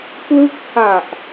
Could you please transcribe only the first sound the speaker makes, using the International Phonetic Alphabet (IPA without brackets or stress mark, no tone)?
k